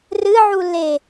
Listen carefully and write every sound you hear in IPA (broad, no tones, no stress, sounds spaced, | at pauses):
r ɨ ʕ u l e